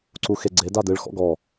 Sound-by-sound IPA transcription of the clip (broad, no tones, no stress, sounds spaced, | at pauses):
ǀ u x e ɡ͡ǀ e d a d ɨ ɭ x ɔ̰ ɡ ɔ